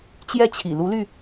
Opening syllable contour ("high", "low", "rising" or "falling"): falling